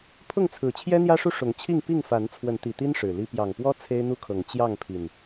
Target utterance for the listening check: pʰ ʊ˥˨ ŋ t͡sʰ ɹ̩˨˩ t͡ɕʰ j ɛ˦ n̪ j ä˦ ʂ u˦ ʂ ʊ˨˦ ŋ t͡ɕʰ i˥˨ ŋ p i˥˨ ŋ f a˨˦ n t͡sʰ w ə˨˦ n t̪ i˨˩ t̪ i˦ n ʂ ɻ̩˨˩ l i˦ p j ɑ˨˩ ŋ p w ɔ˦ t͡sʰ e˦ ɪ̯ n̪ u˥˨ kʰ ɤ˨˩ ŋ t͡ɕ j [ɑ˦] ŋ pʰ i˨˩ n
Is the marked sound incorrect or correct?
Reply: incorrect